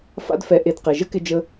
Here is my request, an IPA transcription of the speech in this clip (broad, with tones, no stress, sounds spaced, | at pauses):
f a̰˦ d f ɛ˧ ʔ e˧ d q e˨ ʒ ə˦ k ɪ˧ d͡ʒ ə˧